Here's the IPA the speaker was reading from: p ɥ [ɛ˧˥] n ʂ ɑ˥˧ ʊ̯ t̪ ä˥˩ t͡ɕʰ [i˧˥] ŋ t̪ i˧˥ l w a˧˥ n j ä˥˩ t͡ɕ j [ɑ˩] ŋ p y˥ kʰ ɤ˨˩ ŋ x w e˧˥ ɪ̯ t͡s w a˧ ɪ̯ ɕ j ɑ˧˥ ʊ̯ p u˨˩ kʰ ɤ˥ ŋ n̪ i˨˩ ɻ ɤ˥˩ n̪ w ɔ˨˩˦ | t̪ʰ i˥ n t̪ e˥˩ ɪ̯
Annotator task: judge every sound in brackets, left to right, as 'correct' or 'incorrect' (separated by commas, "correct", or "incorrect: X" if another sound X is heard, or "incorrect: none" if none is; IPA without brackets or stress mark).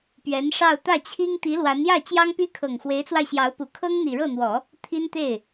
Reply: correct, incorrect: i˥, incorrect: ɑ˥